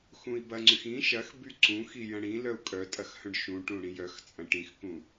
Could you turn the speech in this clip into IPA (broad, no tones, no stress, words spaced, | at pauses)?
xũi̯bɐŋ͡ǀyx ĩ ʃɐx byǀũxi jɐ̃ɽĩlœu̯ kʼœ tʼɐxhœ̃ɖʃũʈũ ɽĩjœxt͡sʼɐ̃ ʈĩxkũ